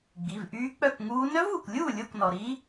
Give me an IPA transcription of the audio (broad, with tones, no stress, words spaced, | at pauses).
ɡ͡bi˩˧˩vʔyː˦˥k͡pœ˥˨kŋuː˦˥ nœ˦˥vuː˩klʲuː˥˨ lʲo˥˨knɔ˩ ɾi˦˥